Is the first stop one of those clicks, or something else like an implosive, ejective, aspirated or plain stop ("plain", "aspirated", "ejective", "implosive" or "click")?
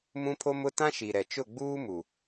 aspirated